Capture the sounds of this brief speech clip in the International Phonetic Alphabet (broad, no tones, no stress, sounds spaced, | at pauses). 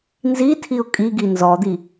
n z i tʰ i ʊ̯ kʼ i ɡ i n z ɔ d̪ i